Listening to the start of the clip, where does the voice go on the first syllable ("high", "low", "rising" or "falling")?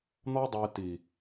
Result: high